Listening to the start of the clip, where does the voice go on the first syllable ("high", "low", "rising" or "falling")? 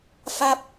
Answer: falling